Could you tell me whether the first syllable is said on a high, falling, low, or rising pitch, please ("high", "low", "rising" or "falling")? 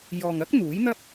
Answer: low